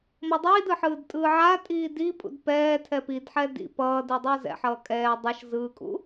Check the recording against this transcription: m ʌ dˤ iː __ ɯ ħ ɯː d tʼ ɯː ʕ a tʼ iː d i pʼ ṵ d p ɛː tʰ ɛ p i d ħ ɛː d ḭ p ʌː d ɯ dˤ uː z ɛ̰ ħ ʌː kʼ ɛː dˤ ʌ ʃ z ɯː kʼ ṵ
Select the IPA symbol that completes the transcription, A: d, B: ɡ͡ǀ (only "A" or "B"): A